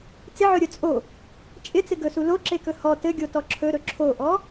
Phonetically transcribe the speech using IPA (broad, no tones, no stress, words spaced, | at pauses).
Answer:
t͡sɪʕɵɾʲɵ t͡sʼo | t͡ʃʼɪt͡sɪ ɡɵsu loǁekɵ hɔ tɘɡʲotɔ ǁʰɵɾɵ ǁʰoʔɔ